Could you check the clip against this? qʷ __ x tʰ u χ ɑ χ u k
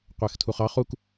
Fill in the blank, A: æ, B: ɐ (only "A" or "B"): A